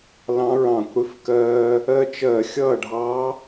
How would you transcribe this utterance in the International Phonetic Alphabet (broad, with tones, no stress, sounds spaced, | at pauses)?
l ɑ̃˧˥ ɹ ɑ̃˧˩˧ kʷ ɽ ɪ˧ f k ɜː˧ | ɜ˧ t͡ʃ ɜ˧˩˧ xʲ ʌː˥˩ ɖʱ ɑ˧˥